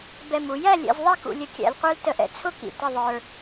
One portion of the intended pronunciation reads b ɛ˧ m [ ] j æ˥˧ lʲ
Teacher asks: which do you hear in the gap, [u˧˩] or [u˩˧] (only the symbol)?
u˩˧